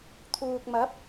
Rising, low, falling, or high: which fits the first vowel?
low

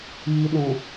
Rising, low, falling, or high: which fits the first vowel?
low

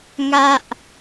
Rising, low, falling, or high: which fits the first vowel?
high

